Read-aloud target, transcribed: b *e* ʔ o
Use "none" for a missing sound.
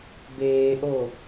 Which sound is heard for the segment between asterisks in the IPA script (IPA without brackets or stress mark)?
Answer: eː